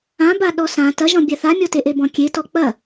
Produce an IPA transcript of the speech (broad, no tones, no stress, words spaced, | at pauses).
ãba ɗɔsã tɐʒɔ̃bʲa θamʲɔteʔe bɔ̃kʲe tɔk͡pɐ